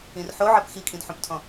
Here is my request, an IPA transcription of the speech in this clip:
ĩ r ħ o ʕ ɜ p x i kʼ ĩ d ħ õ p tʰ ɔ̃

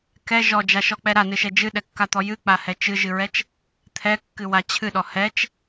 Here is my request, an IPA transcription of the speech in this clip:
k ɛ ʒ ɔ d͡ʒ a ʃ ɔ k͡p ɛ ɾ a n ɨ ʃ ɛ d͡ʒ ɨ ɗ ɛ kː a t̪ ɔ j ɨ k͡p a h ɛ t͡ʃ ɨ ʒ ɨ ɹ ɛ t͡ʃ | t̪ʰ ɛ kː ɨ w a t͡ɕʰ ɨ ɗ ɔ h ɛ t͡ʃ

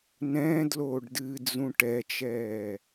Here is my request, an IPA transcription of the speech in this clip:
n ɛ̃ː d l oː ɖ d ɨː d͡z ũ ʈ ɛ t͡ʃ ɛː

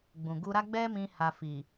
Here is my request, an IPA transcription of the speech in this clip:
ɡ͡b ũ˨ ɡ u˧ ɾ a˦ ɡ͡b ɛ˦ m ĩ˧ h a˧ f i˨

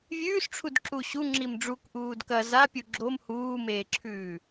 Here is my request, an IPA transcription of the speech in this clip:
vʲ ʉː s ʈ͡ʂʰ u d ǁ u ɕ u ŋ͡ǁ i m ɖ͡ʐ u k ʔ uː d k ɐ z a pʲ u ɡ͡ǁ o m h uː m eː ǁʰ ʉː

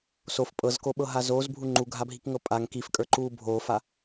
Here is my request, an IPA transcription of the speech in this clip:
s o f pʼ ɤ z k o ɓ ɤ ɦ a z oː z bʱ u ŋ͡ǃ u ɡʱ a bʱ i k ŋ ɤ pʼ a ŋ k i f kʼ ə˞ ǃ uː bʱ oː f a

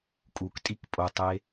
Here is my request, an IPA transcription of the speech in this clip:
kʼ u k tʼ i k pʼ o tˤ e

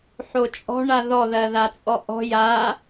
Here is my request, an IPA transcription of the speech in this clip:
ħ o t͡ʃʼ ɔ̤ ɳ a ð ɔ ð ɜ ð a t͡sʼ ɔ ʔ ɔ̤ j a

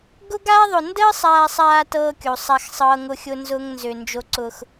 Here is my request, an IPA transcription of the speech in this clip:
ɡ ʊ˦ ɡ aː˦ ðˤ ʊ˨ n d əː˦ sˤ aː˨ sˤ aː˨ t ɤː˦ kʲ o˨ sˤ a˦ x sˤ ɤː˦ ŋ ʊ˦ xʲ ʊ˦ n z ʊː˦ ŋ n z ø˨ n d͡ʒ o˦ ǀ ʊ˦ x

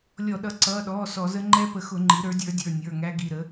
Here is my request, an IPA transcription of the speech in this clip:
lʲ ɔ˧˩˧ ɗ ʌ˩˥ ǀ ʌː˩˧˩ ɗ ɔː˩˧˩ s ɔ˧˩˧ z ə˦˥ ŋ͡ǃ ɛ˦˥ p ə˩˥ x ʊ˧˩˧ ŋ͡ǃ i˩˥ ɾ ə˞˩˥ dʲ ə˞˩˥ dʲ ə˞˩˧˩ nʲ ə˞˩˧˩ ŋ æ˦˥ ɡ i˩˧˩ ɾ ə˩˥

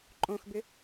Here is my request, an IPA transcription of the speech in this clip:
ǃʼ õ x b ɪ

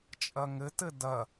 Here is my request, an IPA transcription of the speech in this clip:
t͡ʃʼ ɐ ŋ ɘ t ɘ d ɐ

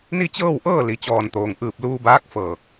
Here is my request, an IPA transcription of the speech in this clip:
n i˥˨ t͡ɕ ɤː˥˨ w ʔ ɤː˥˨ l i˩˧ t͡ɕ ɔː˧˩ n t̪ oː˩ ŋ ʔ ɯː˧˩ p̚ l uː˧ b aː˧˥ k̚ f ɤː˧˩ k̚

